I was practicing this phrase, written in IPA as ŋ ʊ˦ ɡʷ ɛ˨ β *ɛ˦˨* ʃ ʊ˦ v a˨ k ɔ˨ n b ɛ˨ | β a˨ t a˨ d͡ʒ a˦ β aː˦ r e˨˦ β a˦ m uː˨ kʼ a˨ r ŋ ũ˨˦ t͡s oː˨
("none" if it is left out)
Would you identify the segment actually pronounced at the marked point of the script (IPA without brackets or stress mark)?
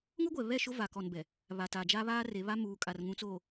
ɛ˦˨